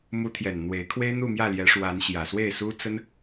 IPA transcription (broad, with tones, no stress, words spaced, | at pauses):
mu˧˥t̪ʰjɛ˨˩n n̪we˧˥ɪ̯kʰwe˥ɪ̯n̪u˥˧ mjä˥˩ljɛ˧˥ʂwa˧˥nɕjä˨˩ swe˥˩ɪ̯su˥t͡sə˥n